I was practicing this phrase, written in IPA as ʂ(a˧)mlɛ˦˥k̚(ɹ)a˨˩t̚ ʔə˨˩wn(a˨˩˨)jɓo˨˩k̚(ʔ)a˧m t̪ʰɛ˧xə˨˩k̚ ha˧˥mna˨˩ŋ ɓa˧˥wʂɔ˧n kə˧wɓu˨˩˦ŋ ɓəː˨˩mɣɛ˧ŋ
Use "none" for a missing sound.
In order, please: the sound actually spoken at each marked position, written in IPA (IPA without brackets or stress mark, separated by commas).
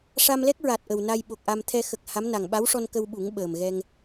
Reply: a˧, ɹ, a˧, ʔ